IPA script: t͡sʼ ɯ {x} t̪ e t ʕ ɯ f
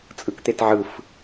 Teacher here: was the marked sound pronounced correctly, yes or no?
no